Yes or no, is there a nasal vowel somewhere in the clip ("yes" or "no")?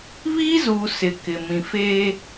yes